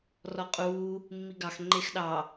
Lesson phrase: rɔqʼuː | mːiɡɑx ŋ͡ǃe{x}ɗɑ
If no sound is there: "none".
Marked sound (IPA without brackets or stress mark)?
x